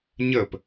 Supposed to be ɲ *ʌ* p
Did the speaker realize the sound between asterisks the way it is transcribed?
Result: no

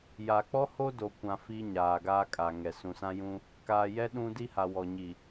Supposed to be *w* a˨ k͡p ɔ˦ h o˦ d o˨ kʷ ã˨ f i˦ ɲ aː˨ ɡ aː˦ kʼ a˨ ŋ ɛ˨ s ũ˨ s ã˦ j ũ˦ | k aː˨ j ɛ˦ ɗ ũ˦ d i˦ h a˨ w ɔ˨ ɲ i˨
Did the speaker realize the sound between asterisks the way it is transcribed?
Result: no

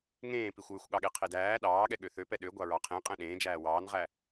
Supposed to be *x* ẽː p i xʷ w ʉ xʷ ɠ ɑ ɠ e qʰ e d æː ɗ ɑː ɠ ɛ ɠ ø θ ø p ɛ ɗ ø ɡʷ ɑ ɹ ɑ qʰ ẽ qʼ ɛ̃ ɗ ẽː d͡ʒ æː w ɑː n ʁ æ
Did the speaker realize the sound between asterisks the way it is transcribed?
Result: no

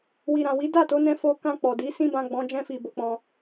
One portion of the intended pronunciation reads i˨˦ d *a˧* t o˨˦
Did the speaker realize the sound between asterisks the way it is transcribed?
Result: no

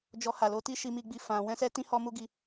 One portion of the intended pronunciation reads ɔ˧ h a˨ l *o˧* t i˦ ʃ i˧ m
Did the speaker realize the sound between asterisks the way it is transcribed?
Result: yes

